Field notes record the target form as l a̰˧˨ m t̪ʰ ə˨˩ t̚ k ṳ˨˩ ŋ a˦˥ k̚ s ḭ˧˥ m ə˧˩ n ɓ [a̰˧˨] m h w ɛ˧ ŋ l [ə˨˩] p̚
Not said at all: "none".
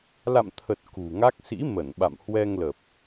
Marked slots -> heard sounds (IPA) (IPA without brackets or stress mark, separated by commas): a̰˧˨, ə˨˩